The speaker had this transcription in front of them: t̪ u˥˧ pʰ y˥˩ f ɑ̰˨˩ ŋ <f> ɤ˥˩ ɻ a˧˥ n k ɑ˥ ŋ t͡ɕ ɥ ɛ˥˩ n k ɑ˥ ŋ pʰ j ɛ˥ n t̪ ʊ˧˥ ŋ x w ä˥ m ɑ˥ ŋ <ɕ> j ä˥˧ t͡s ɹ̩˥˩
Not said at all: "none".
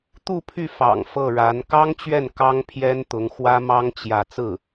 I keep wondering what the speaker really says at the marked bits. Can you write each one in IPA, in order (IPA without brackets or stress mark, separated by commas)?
f, t͡ɕ